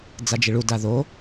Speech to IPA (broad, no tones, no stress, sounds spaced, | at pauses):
d͡z a d͡ʒ i ɭ u d a ð o